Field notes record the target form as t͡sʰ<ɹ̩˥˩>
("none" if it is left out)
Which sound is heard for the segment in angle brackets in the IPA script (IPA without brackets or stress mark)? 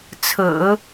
ɹ̩˨˩˦